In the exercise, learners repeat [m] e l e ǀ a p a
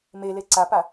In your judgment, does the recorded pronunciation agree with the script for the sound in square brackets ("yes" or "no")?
yes